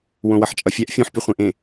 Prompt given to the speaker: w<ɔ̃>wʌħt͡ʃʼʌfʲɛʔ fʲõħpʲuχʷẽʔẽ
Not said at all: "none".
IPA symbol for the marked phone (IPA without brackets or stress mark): õ